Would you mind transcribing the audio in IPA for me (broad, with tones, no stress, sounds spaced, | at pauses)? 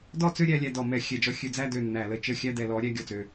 d ɔ˥˧ t͡s ø˥˧ ɾʲ æ˨˦ lʲ æ˨˦ d ɔ˧˩˧ m ɛ˧˩˧ xʲ ɛ˧˩˧ d͡ʒ ɔ˨˦ xʲ ø˨˦ d͡z æ˥˧ d ø˧˩ nː æ˧˩˧ l ə˨˦ t͡ʃ ə˥˧ xʲ æ˥˧ d ɛ˧˩˧ l ɔ˨˦ ɾʲ æ˥˧ ɡʲ ɔ˧˩ t͡s ø˧˩